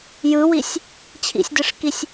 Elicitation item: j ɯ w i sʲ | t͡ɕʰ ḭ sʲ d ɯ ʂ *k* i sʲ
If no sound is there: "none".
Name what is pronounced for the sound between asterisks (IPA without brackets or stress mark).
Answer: k